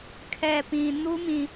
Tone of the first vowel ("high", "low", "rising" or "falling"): low